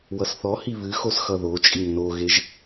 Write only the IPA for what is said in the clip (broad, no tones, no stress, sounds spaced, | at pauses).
w ʌ s θ ɔ h i β ɨ x o s x ʌ ð o t͡ʃʼ i ŋ n o ɣ e ʒ